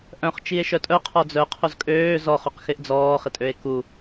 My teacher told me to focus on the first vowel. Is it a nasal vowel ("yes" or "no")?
yes